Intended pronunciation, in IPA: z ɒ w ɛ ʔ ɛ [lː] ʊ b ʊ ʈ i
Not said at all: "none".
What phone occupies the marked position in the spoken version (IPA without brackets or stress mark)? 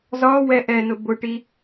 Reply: n